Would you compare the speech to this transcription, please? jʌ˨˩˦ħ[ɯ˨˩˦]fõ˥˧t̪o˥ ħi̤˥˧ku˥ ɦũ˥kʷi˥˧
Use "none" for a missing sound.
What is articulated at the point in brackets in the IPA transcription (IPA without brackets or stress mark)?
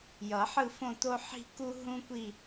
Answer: ɯ˥˧